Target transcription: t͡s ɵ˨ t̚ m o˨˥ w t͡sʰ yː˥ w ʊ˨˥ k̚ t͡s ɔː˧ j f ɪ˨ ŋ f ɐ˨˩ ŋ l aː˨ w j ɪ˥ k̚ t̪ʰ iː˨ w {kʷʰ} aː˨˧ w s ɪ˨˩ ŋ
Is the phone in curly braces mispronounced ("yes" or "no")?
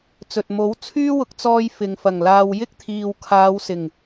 yes